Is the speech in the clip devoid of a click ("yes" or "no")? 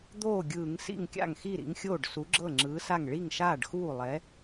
no